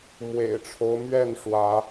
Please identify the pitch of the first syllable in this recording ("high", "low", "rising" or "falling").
low